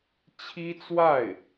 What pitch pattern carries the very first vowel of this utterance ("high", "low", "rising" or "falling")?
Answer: high